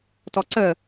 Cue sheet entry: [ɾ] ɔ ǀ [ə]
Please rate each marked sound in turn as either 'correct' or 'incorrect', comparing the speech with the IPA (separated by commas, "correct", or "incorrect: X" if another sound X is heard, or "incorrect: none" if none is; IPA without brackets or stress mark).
incorrect: t, correct